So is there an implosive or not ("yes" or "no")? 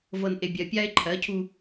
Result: no